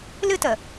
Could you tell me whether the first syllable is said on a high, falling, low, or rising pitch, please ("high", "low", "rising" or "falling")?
high